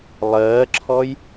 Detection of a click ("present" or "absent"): present